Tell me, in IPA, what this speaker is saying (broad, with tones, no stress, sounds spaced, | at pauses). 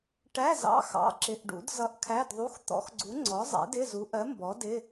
ʈ æ˧˥˧ z ɑ̰˧˥˧ x ɑ̰˧˥˧ ǁ ɪ˧˥˧ ʔ ɖ ṵ˨˥ d z ʌ˧˥˧ ʔ kʰ æ˧˥˧ d ðˤ u˧˥˧ x t̪ ɔ̰˨˥ x ɡ͡ǀ u˨˥ ŋ͡ǀ ɔ˨˥ zˤ ɛ̰˨˥ d ɪ˧˥˧ z u˨˥ ʔ ɜ˨˥ m b ɔ˨˥ d ɪ˧˥˧